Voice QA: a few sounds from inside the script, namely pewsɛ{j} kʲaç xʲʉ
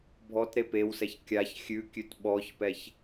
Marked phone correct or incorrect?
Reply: incorrect